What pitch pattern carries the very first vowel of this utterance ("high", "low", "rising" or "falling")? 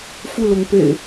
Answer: falling